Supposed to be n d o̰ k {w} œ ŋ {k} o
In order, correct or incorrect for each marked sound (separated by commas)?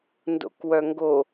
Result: correct, incorrect